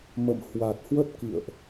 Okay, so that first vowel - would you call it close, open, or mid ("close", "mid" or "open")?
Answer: mid